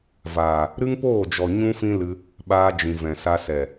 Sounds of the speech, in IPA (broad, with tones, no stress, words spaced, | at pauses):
vaː˨ | ɾɨ˦ŋpoː˦˨d͡ʒɔ˨ ɲũ˦fĩ˦lɨ˧ | ɓaː˧d͡ʒĩ˨vɛ̃˨sa˧ sɛ˨